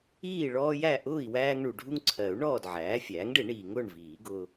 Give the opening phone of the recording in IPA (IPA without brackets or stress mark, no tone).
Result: iː